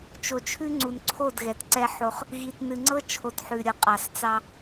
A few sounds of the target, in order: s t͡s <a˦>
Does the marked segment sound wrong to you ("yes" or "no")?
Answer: yes